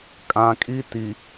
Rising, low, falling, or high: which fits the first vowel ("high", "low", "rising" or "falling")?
low